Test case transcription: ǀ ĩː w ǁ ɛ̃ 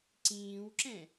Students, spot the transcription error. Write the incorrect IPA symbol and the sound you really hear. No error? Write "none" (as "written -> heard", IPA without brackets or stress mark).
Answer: none